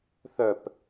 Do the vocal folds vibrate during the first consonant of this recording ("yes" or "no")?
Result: no